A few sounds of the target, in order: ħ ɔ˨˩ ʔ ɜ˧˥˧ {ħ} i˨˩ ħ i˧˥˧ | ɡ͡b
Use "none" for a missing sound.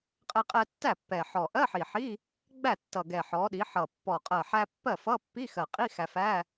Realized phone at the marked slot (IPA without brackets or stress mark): ħ